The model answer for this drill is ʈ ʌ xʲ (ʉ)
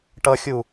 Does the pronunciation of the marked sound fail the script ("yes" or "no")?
yes